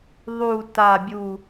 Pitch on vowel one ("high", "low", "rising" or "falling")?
falling